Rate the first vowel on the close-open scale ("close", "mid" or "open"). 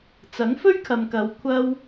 open